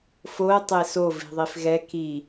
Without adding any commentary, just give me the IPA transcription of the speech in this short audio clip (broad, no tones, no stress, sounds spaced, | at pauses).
f o ə̯ tˤ e s o v i̤ ðˤ i f ɣ ɛ k i